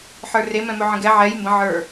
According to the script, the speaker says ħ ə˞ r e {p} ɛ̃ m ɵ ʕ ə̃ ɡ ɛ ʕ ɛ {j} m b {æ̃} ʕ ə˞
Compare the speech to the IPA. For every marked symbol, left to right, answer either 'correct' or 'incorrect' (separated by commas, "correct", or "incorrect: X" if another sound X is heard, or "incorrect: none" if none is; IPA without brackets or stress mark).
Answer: incorrect: m, correct, incorrect: ə̃